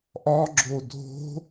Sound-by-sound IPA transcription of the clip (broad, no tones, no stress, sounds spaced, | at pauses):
ʔ ɒ ɡ͡ǁ o dʱ o̤